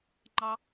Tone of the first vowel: high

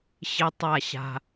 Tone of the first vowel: high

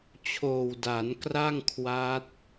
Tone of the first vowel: low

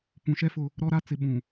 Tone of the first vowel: low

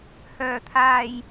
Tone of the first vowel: low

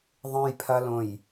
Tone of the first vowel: low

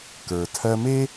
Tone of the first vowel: low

